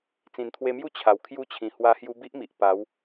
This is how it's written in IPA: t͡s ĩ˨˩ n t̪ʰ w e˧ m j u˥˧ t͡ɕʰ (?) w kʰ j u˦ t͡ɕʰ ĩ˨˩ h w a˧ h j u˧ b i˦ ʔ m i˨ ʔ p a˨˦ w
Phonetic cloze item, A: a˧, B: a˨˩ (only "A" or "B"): B